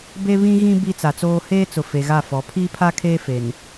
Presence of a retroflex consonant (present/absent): absent